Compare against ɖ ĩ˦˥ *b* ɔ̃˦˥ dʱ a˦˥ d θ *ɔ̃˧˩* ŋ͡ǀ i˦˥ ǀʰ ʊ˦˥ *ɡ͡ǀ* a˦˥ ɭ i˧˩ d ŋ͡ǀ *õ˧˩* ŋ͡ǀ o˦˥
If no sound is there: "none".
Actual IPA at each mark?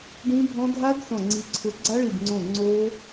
bʱ, ɔ̃˧˩, ɡ͡ǀ, õ˧˩

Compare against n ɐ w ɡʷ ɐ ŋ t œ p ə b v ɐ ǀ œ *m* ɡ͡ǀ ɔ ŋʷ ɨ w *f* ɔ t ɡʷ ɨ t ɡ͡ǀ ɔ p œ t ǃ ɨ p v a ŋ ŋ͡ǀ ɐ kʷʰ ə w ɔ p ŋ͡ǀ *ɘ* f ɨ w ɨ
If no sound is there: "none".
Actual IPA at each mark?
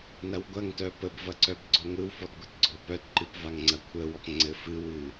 b, f, ɘ

